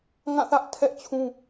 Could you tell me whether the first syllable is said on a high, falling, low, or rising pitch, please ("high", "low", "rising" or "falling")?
falling